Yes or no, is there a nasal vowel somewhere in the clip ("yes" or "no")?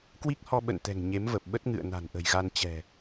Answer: no